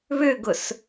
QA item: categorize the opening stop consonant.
plain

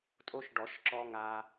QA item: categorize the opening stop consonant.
ejective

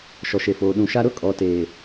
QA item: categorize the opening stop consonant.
implosive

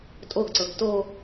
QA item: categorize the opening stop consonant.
ejective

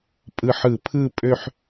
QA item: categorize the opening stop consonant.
ejective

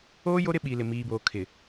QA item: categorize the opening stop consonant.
implosive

